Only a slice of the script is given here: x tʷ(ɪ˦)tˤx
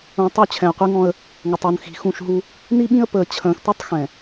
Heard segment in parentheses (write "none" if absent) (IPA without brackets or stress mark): i˦